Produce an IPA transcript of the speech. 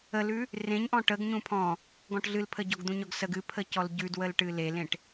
ə l ʉ | r ẽ ɲ ʔ ɔ̃ ʈ ə ɡ ɲ ũ pʰ ɔ̃ | ɡ ɔ̃ ʈ ɮ ɨ l pʰ ə ɟ ɔ ɡ d̪ ũ ɲ ɔ ɡ s ə ɡ ɨ pʰ ə c ɔ l ɟ ʉ d w ə l ʈ ɨ l e l ẽ ʈ

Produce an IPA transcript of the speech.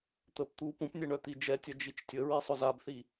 t̪ ə p t̪ u p ũ p nʲ ɛ ɳ œ t̪ i d͡ʒ ɛ tʲ ɐ d͡ʒ i t͡ʃ tʲ ə ɹ i sˤ ʊ z a b θ i

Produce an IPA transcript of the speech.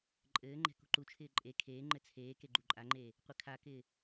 ǃʼ ɘː ŋ͡ǃ ɛ̤ k ṳ ǃ u t͡ʃʰ ɪː ǃʼ e kʰ eː ŋ͡ǃ ɘ t͡sʰ eː k e ɡ͡ǃ u ǃʼ a ŋ͡ǃ eː | qʷ ɘ kʰ a k ɪː

